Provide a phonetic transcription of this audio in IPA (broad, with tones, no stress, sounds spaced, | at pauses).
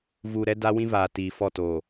v uː˨ ɾ ɛ˦ d a˦ w ĩ˦ v aː˨ t iː˨ f ɔ˦˨ t oː˨